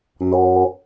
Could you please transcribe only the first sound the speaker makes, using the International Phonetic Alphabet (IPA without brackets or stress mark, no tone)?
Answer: n